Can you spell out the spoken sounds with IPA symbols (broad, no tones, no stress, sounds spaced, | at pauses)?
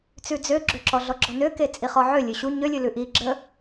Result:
t͡s ʉ d͡z ø ɡ͡ǁ ø ǁ ɔ ɮ ɔ ɡ͡ǁ ɔ n ø k e t͡sʼ i χ ɔ ʕ ø lʲ ø ɕ u ɲ ø lʲ ʉ l ʉ ʔ i ɡ͡ǁ ə